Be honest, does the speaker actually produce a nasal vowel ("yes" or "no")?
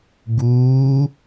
no